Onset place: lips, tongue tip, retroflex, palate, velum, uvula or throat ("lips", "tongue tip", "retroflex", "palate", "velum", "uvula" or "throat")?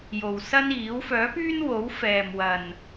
palate